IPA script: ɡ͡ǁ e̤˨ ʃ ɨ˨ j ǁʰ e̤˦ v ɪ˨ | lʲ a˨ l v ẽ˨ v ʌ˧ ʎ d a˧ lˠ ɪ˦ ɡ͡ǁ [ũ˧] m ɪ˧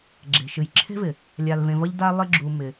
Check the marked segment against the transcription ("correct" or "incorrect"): incorrect